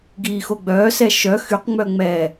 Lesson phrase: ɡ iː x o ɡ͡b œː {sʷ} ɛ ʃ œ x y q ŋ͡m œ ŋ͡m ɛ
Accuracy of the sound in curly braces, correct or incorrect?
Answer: incorrect: s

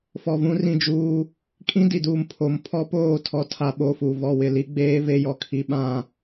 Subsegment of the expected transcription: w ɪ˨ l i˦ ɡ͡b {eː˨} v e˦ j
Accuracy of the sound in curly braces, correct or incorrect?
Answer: incorrect: eː˦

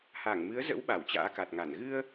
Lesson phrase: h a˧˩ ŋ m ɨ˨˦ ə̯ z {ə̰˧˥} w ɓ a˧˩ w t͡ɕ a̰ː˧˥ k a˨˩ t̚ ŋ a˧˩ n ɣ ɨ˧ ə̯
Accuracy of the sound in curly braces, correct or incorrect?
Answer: correct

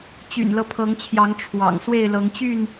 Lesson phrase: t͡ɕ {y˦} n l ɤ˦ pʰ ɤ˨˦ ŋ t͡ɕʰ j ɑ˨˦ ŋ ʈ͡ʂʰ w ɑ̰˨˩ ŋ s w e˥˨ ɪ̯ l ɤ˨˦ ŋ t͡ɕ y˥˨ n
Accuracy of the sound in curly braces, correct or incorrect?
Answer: incorrect: y̰˨˩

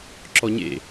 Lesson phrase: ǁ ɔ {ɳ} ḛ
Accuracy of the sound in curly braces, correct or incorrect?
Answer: incorrect: ɲ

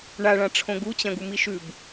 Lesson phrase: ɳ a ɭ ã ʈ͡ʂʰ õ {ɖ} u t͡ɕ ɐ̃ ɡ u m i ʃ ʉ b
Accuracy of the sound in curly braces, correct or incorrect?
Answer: incorrect: ɡ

